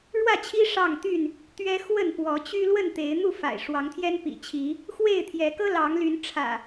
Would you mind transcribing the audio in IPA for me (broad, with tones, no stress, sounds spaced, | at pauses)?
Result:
ɻ w ä˥˨ t͡ɕʰ i˦ ʂ ɑ˥˨ ŋ t̪ y˥˨ n | t̪ ɥ ɛ˦ x w ə˥˨ n p w ɔ˨˦ t͡ɕ y˦ l w ə˥˨ n t̪ e˨˦ ɪ̯ n̪ u˥˨ f a̰˨˩ ɪ̯ ʂ w ɑ˨˦ ŋ t̪ʰ j ɛ˦ n p ḭ˨˩ t͡ɕʰ i˨˦ | x w e˥˨ ɪ̯ t̪ʰ j ɛ˨˦ k ɤ˦ l ɑ˨˦ ŋ l y˨˦ n ʈ͡ʂʰ ä̰˨˩